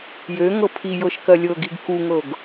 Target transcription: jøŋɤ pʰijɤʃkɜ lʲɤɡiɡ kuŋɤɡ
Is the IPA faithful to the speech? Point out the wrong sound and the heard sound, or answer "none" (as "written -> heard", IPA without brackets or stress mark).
none